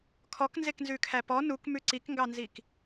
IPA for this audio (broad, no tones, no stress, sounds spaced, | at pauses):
kʰ ɔ k n z e k n z ʉ kʰ æ p ɔ n u k m ʉ ǀ i k ŋ ɡ ɑ n z i k